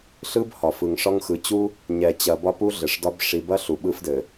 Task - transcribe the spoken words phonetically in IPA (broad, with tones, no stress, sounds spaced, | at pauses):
ɬ ɯ˦ b h ɒ˨ f ɯ˨ ŋ ʂ ɒ˦ ŋ x ɯ˨ t͡ɕ u˦ | ɲ ɛ˨ t͡ɕ ɐ˨ b ɒ˦ p u˦ ɮ ɘ˨ ʂ d ɒ˦ b ʂ i˨ b ɐ˦ ɬ u˨ ɓ ɯ˦ f d ɘ˨